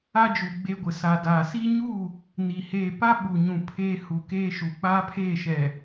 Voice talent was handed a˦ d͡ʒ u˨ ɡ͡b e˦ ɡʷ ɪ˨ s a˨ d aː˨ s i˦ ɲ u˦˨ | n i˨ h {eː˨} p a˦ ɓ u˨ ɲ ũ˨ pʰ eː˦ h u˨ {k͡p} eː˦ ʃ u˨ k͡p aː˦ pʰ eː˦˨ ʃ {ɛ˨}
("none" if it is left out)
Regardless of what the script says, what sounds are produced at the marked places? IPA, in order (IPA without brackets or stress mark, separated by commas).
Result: eː˨, k, ɛ˨